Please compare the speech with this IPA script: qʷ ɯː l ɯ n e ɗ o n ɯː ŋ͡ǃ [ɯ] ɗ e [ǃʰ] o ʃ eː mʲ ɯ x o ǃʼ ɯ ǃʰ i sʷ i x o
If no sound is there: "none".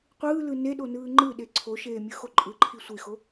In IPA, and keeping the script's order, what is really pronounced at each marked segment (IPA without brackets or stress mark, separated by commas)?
ɯ, ǀʰ